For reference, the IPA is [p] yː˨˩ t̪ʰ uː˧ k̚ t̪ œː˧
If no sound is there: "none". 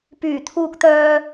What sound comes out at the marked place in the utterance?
p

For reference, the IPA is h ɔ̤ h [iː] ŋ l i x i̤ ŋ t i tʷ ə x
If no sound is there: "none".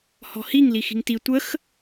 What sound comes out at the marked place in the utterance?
i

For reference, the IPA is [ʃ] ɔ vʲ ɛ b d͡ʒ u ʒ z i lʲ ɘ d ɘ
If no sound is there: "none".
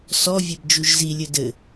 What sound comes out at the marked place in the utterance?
s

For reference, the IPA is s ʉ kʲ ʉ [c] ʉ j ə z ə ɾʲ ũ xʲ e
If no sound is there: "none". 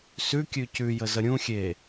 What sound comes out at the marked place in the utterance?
c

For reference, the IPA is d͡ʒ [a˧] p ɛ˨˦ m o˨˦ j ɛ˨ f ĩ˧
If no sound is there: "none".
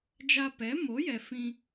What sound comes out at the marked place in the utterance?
a˧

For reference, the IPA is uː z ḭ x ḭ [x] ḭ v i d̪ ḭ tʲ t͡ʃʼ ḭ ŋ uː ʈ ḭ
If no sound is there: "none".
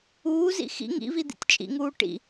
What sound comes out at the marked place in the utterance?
ŋ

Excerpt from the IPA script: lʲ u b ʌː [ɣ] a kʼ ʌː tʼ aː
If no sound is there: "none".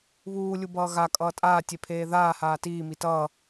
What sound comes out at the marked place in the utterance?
ɣ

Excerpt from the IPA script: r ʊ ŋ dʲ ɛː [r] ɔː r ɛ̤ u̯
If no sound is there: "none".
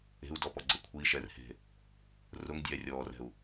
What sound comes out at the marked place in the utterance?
rʲ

